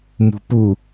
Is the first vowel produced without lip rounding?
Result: no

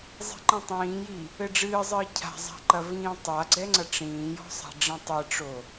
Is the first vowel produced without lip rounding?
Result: yes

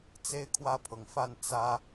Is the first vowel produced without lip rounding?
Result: yes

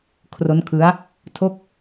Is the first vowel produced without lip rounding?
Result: no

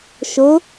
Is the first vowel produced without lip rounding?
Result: no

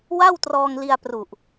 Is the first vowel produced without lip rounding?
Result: yes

